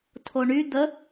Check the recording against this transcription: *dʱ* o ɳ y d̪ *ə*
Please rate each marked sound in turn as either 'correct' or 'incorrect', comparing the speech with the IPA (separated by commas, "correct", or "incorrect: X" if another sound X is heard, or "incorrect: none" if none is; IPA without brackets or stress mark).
incorrect: tʰ, correct